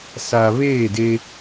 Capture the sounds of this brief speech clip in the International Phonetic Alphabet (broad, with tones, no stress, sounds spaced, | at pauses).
s a˨ β eː˦˨ d e˦